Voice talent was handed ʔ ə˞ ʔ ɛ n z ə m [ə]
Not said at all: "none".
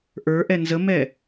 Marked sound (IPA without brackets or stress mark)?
ɛ